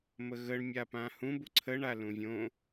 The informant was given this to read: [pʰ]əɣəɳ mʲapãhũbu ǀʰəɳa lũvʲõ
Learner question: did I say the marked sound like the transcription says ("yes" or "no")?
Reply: no